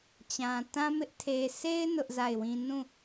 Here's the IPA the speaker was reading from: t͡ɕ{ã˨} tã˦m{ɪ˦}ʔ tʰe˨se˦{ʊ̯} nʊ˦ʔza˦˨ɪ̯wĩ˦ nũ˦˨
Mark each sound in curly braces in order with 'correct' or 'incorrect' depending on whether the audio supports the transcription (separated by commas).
correct, correct, incorrect